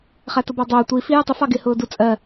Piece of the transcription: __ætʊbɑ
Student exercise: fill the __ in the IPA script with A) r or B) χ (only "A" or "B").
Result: B